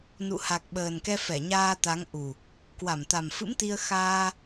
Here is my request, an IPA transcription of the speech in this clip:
nṵ˧˨ha˨˩k̚ ɓəː˨˩nkɛ˧ fɛ˧˩ɲaː˧t̪a˨˦ŋ ʔu˨˩ | kwa˧˩mt̪a˨˩mfɨ̰˧˥mt̪i˧ə̯ xaː˧

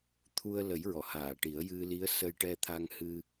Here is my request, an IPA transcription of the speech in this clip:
t̪ʰu˧ə̯lə˨˩˦jɹɔ˨˩˨haː˨˩˨ ʈi˨˩˦ə̯jɨ˧ li˧˥ə̯sə˧jʈɛ˧t̪ʰa˧ŋ hɨ˧

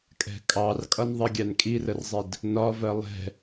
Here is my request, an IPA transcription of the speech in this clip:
kʼɛ̤kʼɑr kʼʌnðˤɪ ɡʲænkʼirərzˤid | nɒ vɜlˠɛ̤

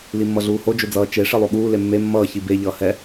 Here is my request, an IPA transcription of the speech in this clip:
limːʌɮuːho d͡ʒod͡zʌː t͡ʃe ʂilˠoɠuː lemːe mːʌː çibe ʎʌːhɛ

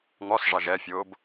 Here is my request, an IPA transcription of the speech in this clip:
ŋɔsʐɑʒ ɛfʲʊːb

